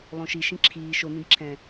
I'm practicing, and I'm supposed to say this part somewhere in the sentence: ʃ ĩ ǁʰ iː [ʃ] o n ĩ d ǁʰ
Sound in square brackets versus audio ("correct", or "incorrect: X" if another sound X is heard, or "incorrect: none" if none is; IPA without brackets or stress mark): correct